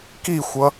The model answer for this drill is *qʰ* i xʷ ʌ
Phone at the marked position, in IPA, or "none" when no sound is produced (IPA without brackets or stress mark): k